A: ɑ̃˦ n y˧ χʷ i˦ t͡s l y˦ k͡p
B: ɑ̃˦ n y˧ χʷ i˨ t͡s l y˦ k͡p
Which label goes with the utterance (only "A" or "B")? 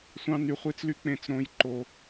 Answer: A